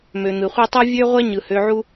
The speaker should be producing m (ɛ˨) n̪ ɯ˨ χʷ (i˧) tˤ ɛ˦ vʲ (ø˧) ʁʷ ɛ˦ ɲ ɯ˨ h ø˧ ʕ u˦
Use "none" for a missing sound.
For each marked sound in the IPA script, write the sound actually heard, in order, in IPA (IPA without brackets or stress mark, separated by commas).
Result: ø˨, i˦, ø˦